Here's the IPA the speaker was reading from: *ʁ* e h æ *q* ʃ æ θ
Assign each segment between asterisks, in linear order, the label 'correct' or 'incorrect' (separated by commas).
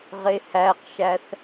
correct, correct